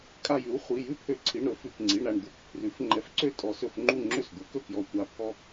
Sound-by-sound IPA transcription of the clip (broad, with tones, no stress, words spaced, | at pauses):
kʼa˧˩jʉ˩˥w χʷi˩˧˩ jʉ˥˩pʰø˧˩˧ǀʰi˩˧˩ɳɾɵ˩˥ fʉ˩˧˩kŋ͡ǀi˩˧˩ɳɾa˥˩ɳ d̪u˥˩k pʰrʉ˩˥f ŋ͡ǃɛ˧˩fǀø˥˩ tʼɔ˧˩˧sɵ˧˩˧fŋ͡ǃu˥˩ ŋ͡ǁø˥˩sd̪u˩˥kɵ˥˩kjɔ˧˩ tʷa˧˩ pʰɔ˦